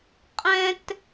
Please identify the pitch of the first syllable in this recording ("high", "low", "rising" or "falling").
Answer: high